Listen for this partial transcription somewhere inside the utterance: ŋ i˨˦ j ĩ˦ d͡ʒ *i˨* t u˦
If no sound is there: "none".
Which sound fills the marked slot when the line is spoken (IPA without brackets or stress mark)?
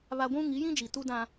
i˨